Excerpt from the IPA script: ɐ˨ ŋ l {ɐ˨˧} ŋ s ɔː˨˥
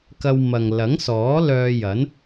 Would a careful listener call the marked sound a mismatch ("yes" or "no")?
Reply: yes